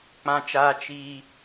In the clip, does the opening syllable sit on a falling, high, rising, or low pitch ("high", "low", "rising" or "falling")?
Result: low